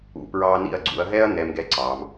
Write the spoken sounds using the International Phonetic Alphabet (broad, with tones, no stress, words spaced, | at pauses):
ṵ˦˨pɹɑ˥ nḭ˦˨ɐ̯ɡ͡ǀṵ˨˦ɐ̯ɦɛ˥ɐ̯ nɛ˥m ɡɛ˥ǀɑ˨˦m